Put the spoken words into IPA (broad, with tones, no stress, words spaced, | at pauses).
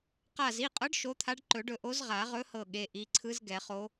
qa˧˩zi˩˧˩qʼɤ˧˥ɖ ʃo˧˥t̪ʰa˧˥ɖ ǃɵ˨˩˦ɖɵ˧˩ ʔo˧˥zʁa˨˩˦ʁɵ˧˥hɤ˧˩ ɠe˩˧˩ʔi˩˧˩ ǀʰɯ˧˥z ɡɛ˨˩˦χo˧˥